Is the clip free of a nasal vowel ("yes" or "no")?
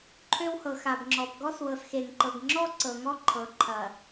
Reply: yes